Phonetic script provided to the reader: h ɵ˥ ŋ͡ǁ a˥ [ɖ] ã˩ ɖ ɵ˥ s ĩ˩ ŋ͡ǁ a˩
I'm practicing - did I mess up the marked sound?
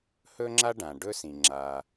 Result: no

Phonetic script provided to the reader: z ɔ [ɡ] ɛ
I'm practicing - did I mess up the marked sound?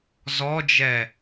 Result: yes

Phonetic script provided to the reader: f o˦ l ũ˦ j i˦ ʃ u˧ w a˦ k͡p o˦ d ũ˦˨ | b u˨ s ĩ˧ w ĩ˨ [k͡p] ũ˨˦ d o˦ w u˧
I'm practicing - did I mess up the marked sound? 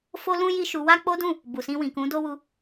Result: yes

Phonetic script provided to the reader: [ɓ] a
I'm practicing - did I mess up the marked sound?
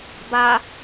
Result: yes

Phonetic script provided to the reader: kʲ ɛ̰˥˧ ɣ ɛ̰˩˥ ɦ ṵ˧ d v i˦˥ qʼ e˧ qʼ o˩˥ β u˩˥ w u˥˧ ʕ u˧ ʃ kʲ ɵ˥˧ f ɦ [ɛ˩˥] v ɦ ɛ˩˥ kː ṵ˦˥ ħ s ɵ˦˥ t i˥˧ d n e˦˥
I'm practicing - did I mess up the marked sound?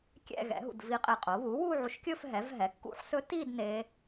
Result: no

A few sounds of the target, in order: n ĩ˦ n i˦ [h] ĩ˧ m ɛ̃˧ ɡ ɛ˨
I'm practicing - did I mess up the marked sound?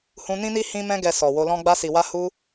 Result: no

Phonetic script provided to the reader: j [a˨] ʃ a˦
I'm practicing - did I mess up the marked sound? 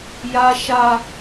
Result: yes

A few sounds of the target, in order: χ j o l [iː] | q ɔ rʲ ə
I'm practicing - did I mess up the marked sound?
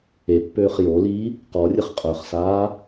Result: no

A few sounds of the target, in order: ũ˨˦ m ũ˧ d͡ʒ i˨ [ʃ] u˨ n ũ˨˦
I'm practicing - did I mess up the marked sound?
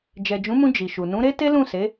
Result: no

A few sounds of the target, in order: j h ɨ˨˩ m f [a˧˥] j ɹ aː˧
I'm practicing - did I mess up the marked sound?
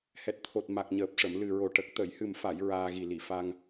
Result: yes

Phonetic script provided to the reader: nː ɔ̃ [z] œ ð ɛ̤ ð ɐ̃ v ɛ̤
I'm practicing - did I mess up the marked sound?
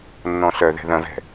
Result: yes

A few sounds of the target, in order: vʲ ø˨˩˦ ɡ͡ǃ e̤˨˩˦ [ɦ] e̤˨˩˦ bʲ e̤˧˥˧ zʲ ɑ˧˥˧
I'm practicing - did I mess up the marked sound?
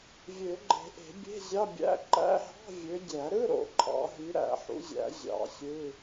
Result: yes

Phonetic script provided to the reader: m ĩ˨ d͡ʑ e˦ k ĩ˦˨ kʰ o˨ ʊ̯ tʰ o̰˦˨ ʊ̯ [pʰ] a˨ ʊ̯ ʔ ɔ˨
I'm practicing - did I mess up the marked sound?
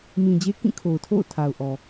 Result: yes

